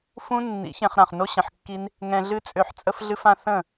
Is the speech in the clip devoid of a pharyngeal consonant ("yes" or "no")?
no